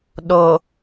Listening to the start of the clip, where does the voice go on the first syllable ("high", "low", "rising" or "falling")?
low